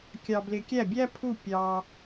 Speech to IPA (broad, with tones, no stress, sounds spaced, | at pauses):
kʲ ɑ˧ b l ɪ˧ kʲ æ˥˩ bʲ æ˥ pʰ u˥˩ pʲ ɑ˧